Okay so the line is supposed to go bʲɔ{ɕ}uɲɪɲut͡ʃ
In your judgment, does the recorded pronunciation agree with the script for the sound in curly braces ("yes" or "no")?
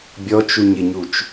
no